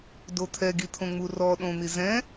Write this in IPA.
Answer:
d o t̪ʰ ɛ ɡ i t̪ʰ õ ŋ͡m u r ɔ ɗ õ n̪ i z ɛ̃

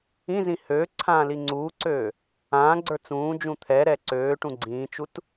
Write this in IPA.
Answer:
ĩ z ĩ h øː ǀʰ ãː l i ŋ͡ǀ uː ǀ øː | ãː ɡ͡ǀ ə˞ t͡s ũː d͡ʒ ũ t̪ʰ ɛ ɾ ɛ ǀ øː ʈ ũ ɡ͡ǀ ĩː t͡ʃ u t

